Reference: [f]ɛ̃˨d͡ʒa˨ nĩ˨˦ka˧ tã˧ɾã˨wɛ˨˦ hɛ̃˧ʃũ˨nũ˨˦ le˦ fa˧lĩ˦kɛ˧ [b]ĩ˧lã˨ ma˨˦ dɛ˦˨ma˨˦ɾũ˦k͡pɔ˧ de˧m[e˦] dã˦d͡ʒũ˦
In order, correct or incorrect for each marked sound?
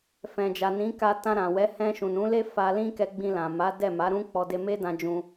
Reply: correct, incorrect: ɡ͡b, correct

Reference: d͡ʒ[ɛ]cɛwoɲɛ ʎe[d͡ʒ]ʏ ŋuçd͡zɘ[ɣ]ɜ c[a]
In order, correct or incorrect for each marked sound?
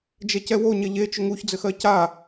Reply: correct, incorrect: t͡ʃ, incorrect: x, correct

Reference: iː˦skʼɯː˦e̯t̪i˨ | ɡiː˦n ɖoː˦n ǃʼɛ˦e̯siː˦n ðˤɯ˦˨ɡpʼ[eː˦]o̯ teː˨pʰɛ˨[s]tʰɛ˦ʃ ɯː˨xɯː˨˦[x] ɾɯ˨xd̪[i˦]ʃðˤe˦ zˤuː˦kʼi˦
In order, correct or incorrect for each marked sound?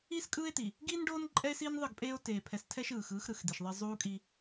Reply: correct, correct, correct, incorrect: i˨

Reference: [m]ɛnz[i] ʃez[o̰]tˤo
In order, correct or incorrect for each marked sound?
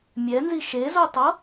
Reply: incorrect: mʲ, correct, incorrect: o

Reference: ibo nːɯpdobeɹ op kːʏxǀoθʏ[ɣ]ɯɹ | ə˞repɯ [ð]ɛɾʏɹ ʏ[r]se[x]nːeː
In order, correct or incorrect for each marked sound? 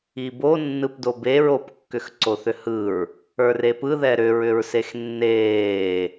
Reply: incorrect: h, correct, incorrect: ɹ, correct

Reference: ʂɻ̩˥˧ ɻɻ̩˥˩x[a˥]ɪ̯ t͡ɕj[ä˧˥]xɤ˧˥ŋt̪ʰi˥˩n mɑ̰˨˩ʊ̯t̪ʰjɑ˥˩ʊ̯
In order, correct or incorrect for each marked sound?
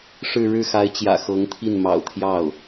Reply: incorrect: a˧˥, incorrect: ä̰˨˩

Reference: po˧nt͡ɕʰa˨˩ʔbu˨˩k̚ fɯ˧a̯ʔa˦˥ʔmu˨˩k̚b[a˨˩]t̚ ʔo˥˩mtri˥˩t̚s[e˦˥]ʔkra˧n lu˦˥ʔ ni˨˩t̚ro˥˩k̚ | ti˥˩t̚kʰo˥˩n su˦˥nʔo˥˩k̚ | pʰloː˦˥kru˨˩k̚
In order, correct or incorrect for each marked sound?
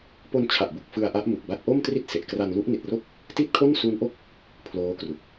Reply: incorrect: a˦˥, incorrect: e˨˩

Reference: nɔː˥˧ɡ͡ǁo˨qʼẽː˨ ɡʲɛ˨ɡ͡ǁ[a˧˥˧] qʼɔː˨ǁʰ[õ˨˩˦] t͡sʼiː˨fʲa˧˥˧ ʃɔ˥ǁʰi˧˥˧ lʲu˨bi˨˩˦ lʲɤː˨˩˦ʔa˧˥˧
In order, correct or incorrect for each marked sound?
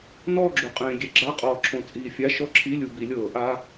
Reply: correct, correct

